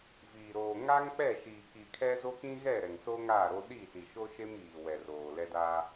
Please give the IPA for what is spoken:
viː˨ ɾoː˨ ŋa˦ŋk͡pɛ˦˨ʃiː˨ ki˨kʰɛ˦ zo˦kĩ˦ɣɛ˦˨ɾɛ˨ŋ so˦ŋa˦˨ ɾo˦ ɗi˦˨si˨ʃo˦ ʃe˦miː˨wɛ˨r oː˨ lɛ˦ da˦

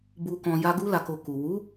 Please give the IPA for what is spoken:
bu˧kɔ̃˧ ja˦ ɡu˦la˧ko˧ ku˨ wu˨˦

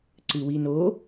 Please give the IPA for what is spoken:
ǀɨwino

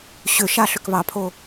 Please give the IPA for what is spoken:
ɕʏ ʃaɬ ʏkβɑpʰo

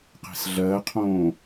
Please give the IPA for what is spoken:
qe̤sɮɜqʰõː

